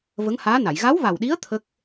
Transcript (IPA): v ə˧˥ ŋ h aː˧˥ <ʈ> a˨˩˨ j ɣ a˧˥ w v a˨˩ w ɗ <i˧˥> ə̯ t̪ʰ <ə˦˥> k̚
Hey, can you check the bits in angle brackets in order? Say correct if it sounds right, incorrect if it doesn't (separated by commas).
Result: incorrect, correct, correct